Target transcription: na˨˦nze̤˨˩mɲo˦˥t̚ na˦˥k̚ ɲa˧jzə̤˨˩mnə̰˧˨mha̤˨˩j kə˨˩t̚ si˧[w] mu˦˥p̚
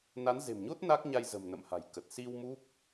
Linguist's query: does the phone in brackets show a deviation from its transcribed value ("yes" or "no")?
no